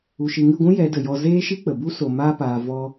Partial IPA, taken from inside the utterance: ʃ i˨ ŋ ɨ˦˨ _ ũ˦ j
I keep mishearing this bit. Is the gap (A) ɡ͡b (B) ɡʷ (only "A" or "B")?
B